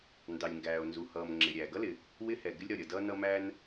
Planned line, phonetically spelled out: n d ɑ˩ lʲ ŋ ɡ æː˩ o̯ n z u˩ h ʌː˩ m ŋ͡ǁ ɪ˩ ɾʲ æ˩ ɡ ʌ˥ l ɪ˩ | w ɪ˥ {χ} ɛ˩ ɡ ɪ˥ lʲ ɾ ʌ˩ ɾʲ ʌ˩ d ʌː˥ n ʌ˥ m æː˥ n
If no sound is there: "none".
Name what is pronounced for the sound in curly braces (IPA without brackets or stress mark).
h